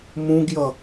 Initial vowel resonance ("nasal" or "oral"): nasal